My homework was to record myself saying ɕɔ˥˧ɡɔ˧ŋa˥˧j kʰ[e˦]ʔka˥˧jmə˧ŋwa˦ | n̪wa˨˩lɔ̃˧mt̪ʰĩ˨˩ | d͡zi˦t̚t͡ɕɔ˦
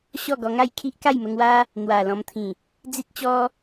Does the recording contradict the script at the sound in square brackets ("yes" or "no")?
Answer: yes